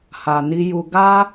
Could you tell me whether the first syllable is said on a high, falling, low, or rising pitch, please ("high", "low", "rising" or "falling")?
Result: low